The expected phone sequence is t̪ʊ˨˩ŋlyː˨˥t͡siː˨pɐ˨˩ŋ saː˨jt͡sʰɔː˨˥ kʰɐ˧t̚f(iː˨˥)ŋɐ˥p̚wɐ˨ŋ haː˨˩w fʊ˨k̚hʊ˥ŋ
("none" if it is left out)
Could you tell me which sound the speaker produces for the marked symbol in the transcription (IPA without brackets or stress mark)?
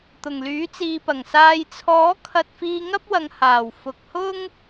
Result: iː˧